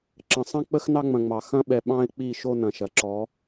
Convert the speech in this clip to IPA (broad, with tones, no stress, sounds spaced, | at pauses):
ǁ ə̃˨ sˤ ɐ̃˦ k͡p ə˦ x n ɑ˦ ŋ͡m ɐ̃˨ ŋ͡m ɑ˨ x ɐ̃˦ ɓ ɛ˨ ɓ ɑ̃˦ ɪ̯ k͡p i˦˨ ʃ o˦ n ɐ̃˨ ʃ ɐ˨ ǁ ɔ˨˦